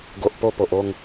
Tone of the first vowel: low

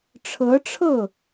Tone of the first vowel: rising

